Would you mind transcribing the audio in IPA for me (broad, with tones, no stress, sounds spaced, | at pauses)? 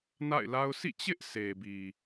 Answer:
n a̰˦˨ ɪ̯ l a˦ ʊ̯ sʰ ḭ˦˨ t͡ɕ ɪ˦ ʔ s e˨ b i˨